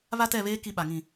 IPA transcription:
β a˦ t ɛ˦˨ β eː˦ k i˦ ɓ a˨ ŋ ĩ˦˨

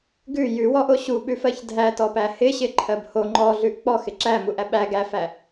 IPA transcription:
ɡ ʉ j ʉ w ɔ ʔ o ɕ u ɓ ʉ f ɜ ç dʱ æ t ɔ p æ h ɪ ɕ ɪ ǃʰ ɜ b h o ŋ͡ǃ ɔ ɮ ʉ ʔ k͡p ɔ x ɪ ǁ æ m u ʔ æ ɓ æ ɡ æ f æ

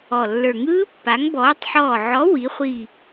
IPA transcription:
ɔ˨˩ lː ə˞˨˩ ŋ ɯː˦˥ pː a˨˥ ŋ b ɔː˨˥ tˤ ħ ɔː˦˨ ʕ ɔ˨˥ w i˨˥ χʷ i˦˨

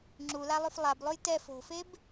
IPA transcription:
ŋ͡ǁ u l a lˠ y f lˠ a b lˠ u j t ɛ f o̤ f e b

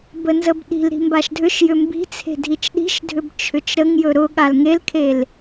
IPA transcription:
b ə n z ə b ɗ i̤ l ɾ i̤ m b a ʃ dʱ ʏ ʃ j ʏ m b i̤ t͡sʰ e̤ dʱ i t͡ʃ ɗ i̤ ʃ dʱ ʏ b t͡ʃʰ ʏ t͡ʃ ɾ ə ŋ j ɵ ɾ ʊ ɠ a l ŋ e l kʰ e l

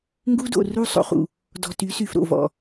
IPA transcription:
ŋ ɡ u˦ d o̰˨ r u˦˨ sˤ o̰˨ χ ṵ˨ | d ɔ̤˨ t y˨˦ s y˨ f ɾ o̰˨ v ɔ̰˨

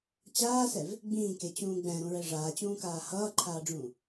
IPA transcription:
t͡ɕ aː s ɛ v | ɡ͡b ĩː k e t͡ɕ ũː ɡ͡b ɛ̃ ɾ ũ ɹ ɛ ʐ aː t͡ɕ ũː k aː h ʌː ǃʰ aː ɖ͡ʐ ũː

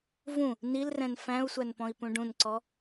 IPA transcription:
v ũ | n i l r ɛ̃ n f æ̃ u̯ sʷ æ n p ɔ̃ i̯ p ũ ɖ ũ n ǀ ɔ

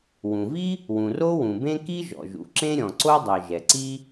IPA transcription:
w ũ˩ v i˥ | w ũ˩ r o˥ w ũ˩ b ẽ˥ k i˥ ʒ ɔ̰˩ ʒ ṵ˩ ǁ ẽ˥ ɾʲ ɔ̃˩ ǀ o˥ dˤ ɜ˩ ʒ ɛ˩ ǀ i˥

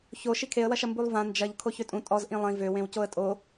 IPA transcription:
ç o ʃ i kʰ e ə̯ w ɐ ʃ ɐ m b u lˠ v ã n d͡ʒ ɐ ʎ kʰ o ç ø tʼ ũ tʼ ɔ z ʔ ĩ lˠ ĩ v ø w ẽ w c o ə̯ tʼ o

